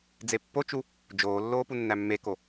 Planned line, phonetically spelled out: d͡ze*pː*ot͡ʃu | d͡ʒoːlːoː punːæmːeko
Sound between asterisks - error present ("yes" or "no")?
no